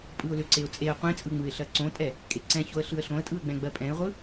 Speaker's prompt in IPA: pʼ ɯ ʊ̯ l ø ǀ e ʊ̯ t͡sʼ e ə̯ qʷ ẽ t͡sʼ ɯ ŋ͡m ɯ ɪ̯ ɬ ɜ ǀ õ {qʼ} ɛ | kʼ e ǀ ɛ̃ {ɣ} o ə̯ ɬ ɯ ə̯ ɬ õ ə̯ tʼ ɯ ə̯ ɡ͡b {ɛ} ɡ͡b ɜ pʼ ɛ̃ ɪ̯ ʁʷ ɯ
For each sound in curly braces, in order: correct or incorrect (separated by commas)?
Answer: incorrect, incorrect, incorrect